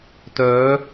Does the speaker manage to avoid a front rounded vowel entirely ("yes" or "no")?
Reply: no